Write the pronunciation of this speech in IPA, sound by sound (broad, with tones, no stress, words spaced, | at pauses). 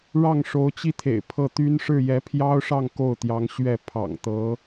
ɻɑ˥˩ŋʂo˧˥ʊ̯t͡ɕi˥t̪ʰḛ˨˩ɪ̯ pʰɤ˥˩t̪y˥n ʂɻ̩˥˩jɛ˧˥pʰjɑ˥ʊ̯ʂɑ˥˧ŋ ko˥˩ʊ̯t̪jɑ˧˥ŋɕɥɛ˥˩ pʰɑ̰˨˩ŋt̪ɤ˧˥